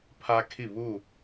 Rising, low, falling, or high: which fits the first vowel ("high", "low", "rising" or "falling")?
high